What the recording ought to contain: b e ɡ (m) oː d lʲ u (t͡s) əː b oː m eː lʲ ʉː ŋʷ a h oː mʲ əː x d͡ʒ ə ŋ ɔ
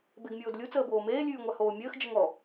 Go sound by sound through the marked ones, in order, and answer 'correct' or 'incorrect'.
incorrect, correct

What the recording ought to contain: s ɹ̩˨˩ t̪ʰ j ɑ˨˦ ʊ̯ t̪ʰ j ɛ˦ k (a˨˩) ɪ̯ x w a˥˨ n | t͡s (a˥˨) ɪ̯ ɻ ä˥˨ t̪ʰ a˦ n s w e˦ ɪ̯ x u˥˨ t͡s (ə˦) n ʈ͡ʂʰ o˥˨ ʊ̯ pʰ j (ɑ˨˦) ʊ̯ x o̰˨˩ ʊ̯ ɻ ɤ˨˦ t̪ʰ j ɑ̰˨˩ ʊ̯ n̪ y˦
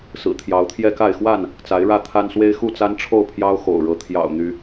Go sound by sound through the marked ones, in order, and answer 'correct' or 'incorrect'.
incorrect, incorrect, incorrect, incorrect

